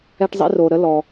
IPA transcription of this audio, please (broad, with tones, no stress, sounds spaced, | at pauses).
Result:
ɛ˦ ʈ zˤ ḭ˦ r o˨ ɾ ə˥ l ɔ˨